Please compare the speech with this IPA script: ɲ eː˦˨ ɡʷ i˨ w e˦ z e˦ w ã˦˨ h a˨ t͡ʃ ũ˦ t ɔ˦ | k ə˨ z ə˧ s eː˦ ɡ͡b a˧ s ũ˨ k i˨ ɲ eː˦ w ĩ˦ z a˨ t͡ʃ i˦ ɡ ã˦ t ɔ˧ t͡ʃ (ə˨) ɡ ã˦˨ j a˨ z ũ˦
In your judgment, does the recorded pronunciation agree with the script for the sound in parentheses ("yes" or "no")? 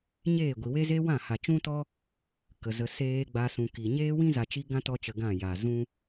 yes